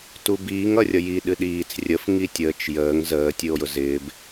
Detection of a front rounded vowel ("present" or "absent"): absent